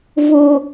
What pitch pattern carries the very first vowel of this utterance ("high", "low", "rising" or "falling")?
high